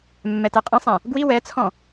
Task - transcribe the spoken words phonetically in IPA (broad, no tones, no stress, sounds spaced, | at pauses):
mː ɛ t ɛ qʼ ɛ̃ sˤ ɛ̃ | ɡ w i w ɛ t͡sʰ ɔ̃